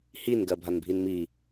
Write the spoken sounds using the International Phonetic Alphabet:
hinɡɜbʱanbʱin mi

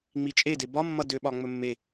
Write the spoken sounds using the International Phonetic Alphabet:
ŋ͡mit͡ʃʼe debɒ mːʌdøɓɒ ŋ͡mɵmːe

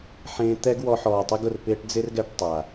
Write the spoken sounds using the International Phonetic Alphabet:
ħẽː˧ t̪ɛ˦ɡwɔ˧ ħɔː˨tˤi˧ɡʊ˨r pɪː˧ʈ d͡zɪ˦rɡɛ˧ʈ tˤa˨

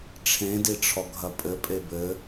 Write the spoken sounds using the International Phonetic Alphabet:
ʈ͡ʂʰẽdiʈ͡ʂʰɔɡʱɐ pʼɘpʼe bɘ

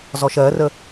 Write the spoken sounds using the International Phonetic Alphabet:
zɔʃɜrə

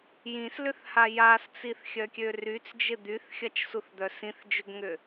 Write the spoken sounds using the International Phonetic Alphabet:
jĩslʏθha jast͡siθxʲœkʲø ryt͡sd͡ʒɪ d̪yθxʲɐt͡ʃsuθd̪œ sĩθd͡ʒøɡŋʏ

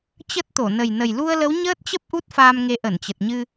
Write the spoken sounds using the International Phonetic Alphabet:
t͡ɕə˦˥t̚t̪o˧˩ nə˨˩jnə˨˩j lu˧ə̯lə˨˦wɲəː˦˥t̚t͡ɕə˦˥p̚ ʔu˦˥t̚faː˧mŋe˨˦ ʔə˧˩nt͡ɕə˨˩t̚ɲɨ˧

